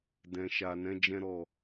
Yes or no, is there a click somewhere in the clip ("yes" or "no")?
no